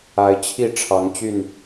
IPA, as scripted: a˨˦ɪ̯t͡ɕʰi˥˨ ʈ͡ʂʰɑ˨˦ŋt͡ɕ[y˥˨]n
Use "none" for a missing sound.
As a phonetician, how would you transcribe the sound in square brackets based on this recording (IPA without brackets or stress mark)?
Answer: y˥˨